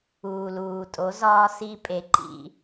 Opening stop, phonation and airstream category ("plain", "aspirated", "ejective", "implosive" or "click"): ejective